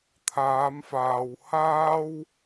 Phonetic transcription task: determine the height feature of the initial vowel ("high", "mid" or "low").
low